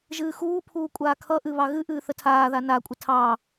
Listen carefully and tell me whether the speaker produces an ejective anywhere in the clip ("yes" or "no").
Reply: yes